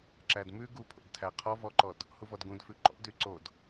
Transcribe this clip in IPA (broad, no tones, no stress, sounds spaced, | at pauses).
ǁ æ d m ʉ ɡ u pʰ o̰ d tʰ æ qʰ ɔ v ɔ ǃ ɔ d | h u v ɔ d ɡ ũ d f ʉ ǃ ɔ̰ d y ǀ o d